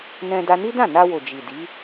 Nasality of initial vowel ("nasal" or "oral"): nasal